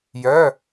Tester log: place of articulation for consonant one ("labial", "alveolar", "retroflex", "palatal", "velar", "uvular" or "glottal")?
palatal